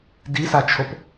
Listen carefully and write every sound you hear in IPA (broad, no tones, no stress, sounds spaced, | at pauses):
d i s a t͡ʃʰ o p